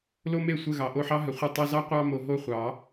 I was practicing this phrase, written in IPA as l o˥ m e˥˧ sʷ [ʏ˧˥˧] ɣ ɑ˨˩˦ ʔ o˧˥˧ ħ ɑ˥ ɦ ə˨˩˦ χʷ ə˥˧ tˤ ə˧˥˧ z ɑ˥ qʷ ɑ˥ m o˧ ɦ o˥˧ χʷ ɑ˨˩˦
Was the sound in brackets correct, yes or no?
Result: no